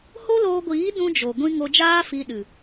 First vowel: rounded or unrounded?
rounded